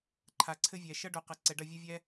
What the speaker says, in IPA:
ǃʰ a˨ ǀʰ ɘ˦ vʲ ɛ˨ ʃ ʌ˦ ɖ o˨ q ɐ˨ ǀ ɛ˨ ɖ ɐ˦˨ vʲ ɘ˦ vʲ ɛ˦

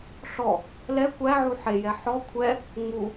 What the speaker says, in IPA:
ɬ ɔ | l ɛ kʷ æ ʕ u ħ e j ɛ ħ ɔ kʷʰ ɛ | ŋ͡m u

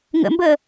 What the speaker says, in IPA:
ŋ ə̰ m b əː

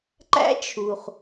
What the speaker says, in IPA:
ǃ æ̰˦ t͡ʃʰ u˩ χ

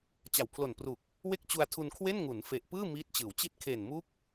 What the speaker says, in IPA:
t͡ɕ a˨˩ w pʰ l o˨˩ n p r u˨˩ k̚ | w e˥˩ k̚ t͡ɕ u˧ a̯ tʰ u˧ n kʰ w e˥˩ n ŋ u˩˦ n f e˨˩ ʔ p ɯː˥˩ m iː˦˥ t̚ t͡ɕ ɯː˩˦ w t͡ɕ i˦˥ t̚ kʰ e˨˩ n m u˦˥ k̚

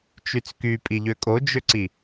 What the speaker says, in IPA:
t͡ʃ y t͡s k y pʼ i ʎ ø kʼ o d͡ʒ ø ǀ i

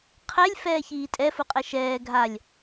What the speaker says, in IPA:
qʰ ɛ lʲ f ɛː ç iː tʼ ɛ f u qʼ ɛ ʃ ɛː ɡʱ a lʲ

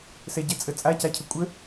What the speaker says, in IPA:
s ɛ ɟ ɛ t͡sʼ ə t͡sʼ a c a cʰ ə kʷʼ ə

